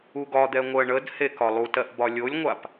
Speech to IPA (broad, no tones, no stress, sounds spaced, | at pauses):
u ɡ ɒ d̪ ɛ ŋʷ ɜ ɳ ə d h e k ɒ lˠ u t ɜ ʔ b ɒ lʲ o lʲ ŋʷ a p